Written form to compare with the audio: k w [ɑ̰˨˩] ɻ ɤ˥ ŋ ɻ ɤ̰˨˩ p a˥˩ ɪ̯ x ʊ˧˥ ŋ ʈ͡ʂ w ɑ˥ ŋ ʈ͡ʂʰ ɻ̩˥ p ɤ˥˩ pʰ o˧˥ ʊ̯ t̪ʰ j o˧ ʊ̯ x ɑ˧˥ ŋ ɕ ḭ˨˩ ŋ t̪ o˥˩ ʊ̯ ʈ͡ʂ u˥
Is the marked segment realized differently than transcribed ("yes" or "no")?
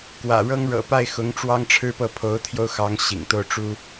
yes